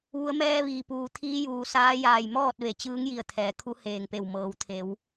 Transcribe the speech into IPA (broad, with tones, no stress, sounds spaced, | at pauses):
ʋ u˩˧ ə̯ m ɛː˧ ʋ iː˩ p uː˩ t̪ʰ iː˧˥ j uː˩ s aː˧˥ j aː˧˩ j m ɔː˥˨ t̚ ʋ e˩˧ t͡ɕ ɯː˧˥ ŋ j i˧˩ ə̯ t̪ʰ ɛː˩˧ kʰ u˧˥ h eː˧˩ ŋ p e˧˩ w m ɤː˩˧ w t̪ʰ e˩˧ w